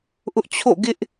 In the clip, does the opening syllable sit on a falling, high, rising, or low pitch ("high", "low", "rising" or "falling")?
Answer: high